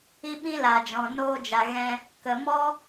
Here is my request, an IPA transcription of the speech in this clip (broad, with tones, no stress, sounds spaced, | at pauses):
i˦ ɓ ĩ˦ l a˨ d͡ʒ ɔ̃˨ n oː˧ d͡ʒ a˨ ɣ ɛ̃˧ | k ə˨ m ɔ˦